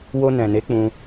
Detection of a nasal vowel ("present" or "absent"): present